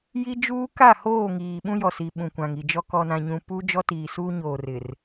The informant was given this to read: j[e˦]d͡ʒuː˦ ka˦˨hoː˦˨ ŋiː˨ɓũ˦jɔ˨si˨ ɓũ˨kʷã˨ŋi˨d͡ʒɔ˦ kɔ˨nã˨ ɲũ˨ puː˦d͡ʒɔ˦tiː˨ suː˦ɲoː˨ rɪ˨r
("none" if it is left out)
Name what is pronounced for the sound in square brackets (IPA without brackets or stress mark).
i˦